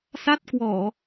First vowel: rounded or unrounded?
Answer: unrounded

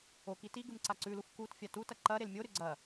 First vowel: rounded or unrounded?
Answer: rounded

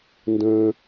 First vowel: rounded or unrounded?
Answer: unrounded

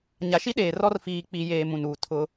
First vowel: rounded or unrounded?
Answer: unrounded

